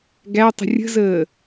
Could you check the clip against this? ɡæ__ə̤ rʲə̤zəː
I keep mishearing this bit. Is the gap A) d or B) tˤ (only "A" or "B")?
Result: B